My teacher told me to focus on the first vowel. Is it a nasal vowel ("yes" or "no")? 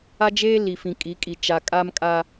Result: no